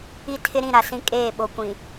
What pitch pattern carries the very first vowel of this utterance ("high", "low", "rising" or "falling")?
falling